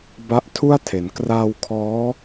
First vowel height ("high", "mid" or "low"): low